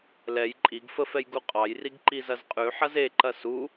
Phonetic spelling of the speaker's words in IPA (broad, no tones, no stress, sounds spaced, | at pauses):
l ɛ j ǃʼ i ɡ f ə f ɛ j ɡ u qʼ ɑ j r i ɡ ǃ i z ɐ z qʼ ʉ ħ ɐ z e ǃ ɐ s u